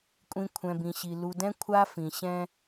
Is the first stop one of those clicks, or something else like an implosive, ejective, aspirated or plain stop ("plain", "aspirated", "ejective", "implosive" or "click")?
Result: ejective